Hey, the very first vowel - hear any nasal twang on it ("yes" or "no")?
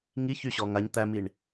no